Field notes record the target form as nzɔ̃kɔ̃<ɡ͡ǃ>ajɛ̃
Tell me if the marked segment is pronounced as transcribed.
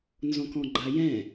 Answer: yes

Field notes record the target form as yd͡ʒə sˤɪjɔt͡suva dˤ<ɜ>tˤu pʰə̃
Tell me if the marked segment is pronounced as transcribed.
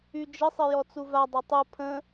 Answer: no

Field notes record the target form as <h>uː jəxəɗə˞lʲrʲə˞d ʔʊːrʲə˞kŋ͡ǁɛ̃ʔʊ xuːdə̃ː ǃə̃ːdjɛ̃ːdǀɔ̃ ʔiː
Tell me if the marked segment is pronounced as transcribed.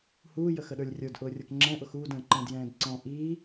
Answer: yes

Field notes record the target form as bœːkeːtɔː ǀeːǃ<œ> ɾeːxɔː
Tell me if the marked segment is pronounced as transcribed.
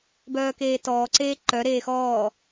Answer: yes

